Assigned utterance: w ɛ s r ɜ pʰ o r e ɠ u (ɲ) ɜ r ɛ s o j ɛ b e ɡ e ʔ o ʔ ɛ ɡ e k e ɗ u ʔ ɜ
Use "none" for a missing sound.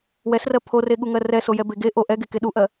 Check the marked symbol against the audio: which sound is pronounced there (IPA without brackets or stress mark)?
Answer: ŋ